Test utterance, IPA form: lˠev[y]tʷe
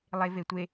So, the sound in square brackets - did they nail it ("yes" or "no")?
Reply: no